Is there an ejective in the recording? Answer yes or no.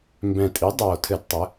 yes